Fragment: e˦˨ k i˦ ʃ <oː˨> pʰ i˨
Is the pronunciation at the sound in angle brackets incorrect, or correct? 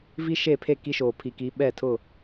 correct